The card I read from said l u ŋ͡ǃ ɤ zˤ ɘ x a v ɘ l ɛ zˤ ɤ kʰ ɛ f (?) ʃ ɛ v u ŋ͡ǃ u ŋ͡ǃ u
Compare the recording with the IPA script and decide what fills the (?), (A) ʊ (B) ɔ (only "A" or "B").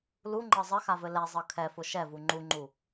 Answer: A